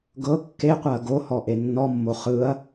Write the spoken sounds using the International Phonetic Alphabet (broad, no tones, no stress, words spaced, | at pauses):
ɡɤ kːeqʷaɐ̯ ɡohɔ ʔenːɔmːo χɯɐ̯